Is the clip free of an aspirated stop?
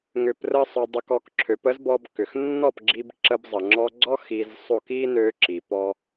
no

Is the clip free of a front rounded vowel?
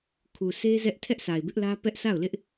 yes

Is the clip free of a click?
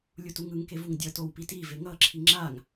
no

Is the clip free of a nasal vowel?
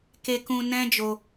no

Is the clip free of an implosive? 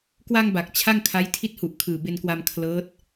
yes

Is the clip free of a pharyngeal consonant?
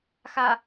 yes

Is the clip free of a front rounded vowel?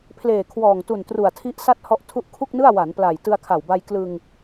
yes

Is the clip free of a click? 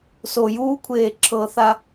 no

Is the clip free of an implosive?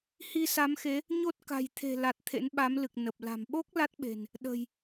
no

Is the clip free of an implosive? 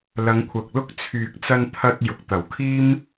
yes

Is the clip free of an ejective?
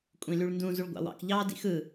no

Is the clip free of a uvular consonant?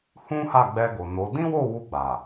yes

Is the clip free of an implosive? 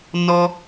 yes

